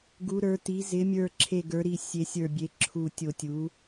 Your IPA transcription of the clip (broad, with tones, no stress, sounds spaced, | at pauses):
ɡ u˩˧ ɾ ə˞˩˧ t i˩˧ z ɪ˩˧ mʲ ə˞˨˩ ǁʰ e˨˩ ɡ ə˞˩˧ ɾ i˨˩ sʲ e˩˧ sʲ ə˞˨˩ bʲ e˩˧ ǁʰ u˨˩ tʲ o˨˩ tʲ u˩˧